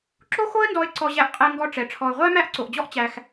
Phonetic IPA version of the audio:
ǁ o˥ x o˥ ə̯ n d ɔ˧ ɪ̯ ǀ ɔ˧ ʑ æ˧ ʔ qʼ ɛ˧ ŋ ɡ ɔ˧ ʈ͡ʂ ɛ˩ ʈ͡ʂʰ ɔ˩ ʊ̯ ʁʷ æ˥ m æ˧ ʔ ǀ o˩ ʔ d͡ʑ ɔ˧ ʔ t͡ɕ æ˩ x

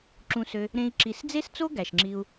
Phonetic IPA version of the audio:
ǁ ũ˧ s ø˧ | ɾ ẽ˦ i̯ ǁ i˧ s d͡z e˦ s t͡s o˦ ɡ æ˨ ʃ ŋ͡ǁ i˧ u̯

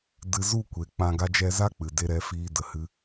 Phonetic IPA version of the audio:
d ɨ˧ z u˦˨ kʷ e˨ k͡p ã˧ ɡ a˦ d͡ʒ ɛ˧ z a˦ k͡p ɨ˨ d e˧ ɾ ɛ˨˦ f iː˧ d ə˨ h ɨ˧

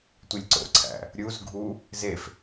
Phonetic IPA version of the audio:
tʷ i lʲ ǀ o̰ ǀʰ æ̰ | ɾʲ u z ɡʱ u | z e f

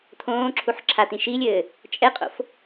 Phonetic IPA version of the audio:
t̪ʰ õː ǁʰ u ħ ǁʰ a t̪ ĩ ʃ i lʲ ɘː | t͡ʃʼ ɛ qʼ o̰ f

